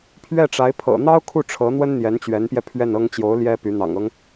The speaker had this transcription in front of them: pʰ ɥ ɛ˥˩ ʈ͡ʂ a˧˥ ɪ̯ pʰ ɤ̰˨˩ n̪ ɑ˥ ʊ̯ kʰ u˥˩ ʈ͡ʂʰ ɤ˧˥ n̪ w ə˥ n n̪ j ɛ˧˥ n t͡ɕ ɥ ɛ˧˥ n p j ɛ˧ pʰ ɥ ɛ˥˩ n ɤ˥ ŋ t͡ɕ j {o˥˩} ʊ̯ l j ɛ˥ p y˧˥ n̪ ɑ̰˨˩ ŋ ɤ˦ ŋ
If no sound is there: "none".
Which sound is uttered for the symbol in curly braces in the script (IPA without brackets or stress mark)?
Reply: o˧˥